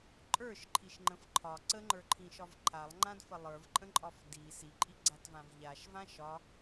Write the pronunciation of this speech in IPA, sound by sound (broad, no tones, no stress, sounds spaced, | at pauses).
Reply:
ǃʼ ə˞ ʃ ǃʰ i ʃ ŋ͡ǃ ə̃ f ǃʰ ɒ ǀ ə ŋ͡ǃ ə˞ ǃʰ ĩ ʃ ɒ v ǃʰ a lˠ ŋ͡ǃ ã d f ə lˠ ə˞ v ǃʼ ə̃ ǃʼ ɒ f d i s i ǃʼ i ɡ͡ǀ a t v ã v ʎ a ʃ v ã ʃ ɒ